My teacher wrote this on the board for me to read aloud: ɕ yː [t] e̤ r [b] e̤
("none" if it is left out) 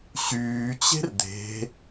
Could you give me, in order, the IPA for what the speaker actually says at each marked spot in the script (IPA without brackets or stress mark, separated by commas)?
t͡ɕ, d̪